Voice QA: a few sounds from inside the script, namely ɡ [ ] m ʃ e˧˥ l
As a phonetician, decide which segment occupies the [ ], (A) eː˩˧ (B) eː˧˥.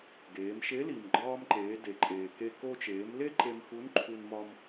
A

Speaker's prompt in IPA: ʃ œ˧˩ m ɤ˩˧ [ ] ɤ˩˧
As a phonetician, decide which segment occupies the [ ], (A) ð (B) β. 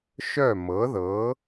A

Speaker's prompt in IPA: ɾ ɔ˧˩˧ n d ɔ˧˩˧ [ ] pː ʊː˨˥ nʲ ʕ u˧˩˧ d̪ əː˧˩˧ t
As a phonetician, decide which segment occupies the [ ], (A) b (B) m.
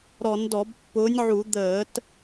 A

